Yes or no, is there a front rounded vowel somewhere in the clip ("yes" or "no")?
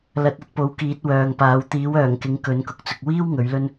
yes